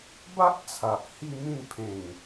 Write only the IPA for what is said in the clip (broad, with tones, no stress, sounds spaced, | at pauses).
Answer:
b a˦ ʔ t͡sʰ a˨ ʔ h i˥˧ m ĩ˥˧ n pʰ ẽ˨˩ ŋ